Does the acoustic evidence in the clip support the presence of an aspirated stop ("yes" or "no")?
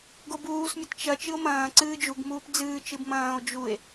no